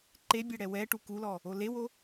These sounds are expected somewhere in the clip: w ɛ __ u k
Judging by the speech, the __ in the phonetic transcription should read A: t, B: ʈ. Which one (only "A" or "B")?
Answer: B